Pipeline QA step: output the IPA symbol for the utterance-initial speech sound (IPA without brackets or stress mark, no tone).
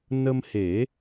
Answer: n